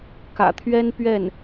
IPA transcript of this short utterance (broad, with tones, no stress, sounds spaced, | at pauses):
k ä̰˨˩ t̪ʰ ɥ ɛ˥ n p ɥ ɛ˥˩ n